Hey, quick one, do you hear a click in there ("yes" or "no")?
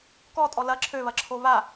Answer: yes